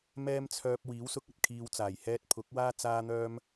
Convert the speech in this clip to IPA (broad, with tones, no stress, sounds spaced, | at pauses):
m ɛː˥ m t͡sʰ œː˧ p̚ w iː˨˥ w s ʊ˧ k̚ ɐ˨ t̚ kʰ iː˧ w t͡s aː˨˩ j h ɛː˧ t̚ pʰ ʊ˨˥ k̚ w aː˥ t͡s aː˥ n̪ œː˥ m